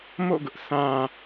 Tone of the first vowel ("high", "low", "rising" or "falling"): falling